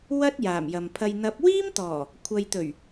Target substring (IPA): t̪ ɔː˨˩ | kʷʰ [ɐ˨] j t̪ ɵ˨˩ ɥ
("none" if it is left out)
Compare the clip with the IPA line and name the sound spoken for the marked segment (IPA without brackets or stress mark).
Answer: ɐ˨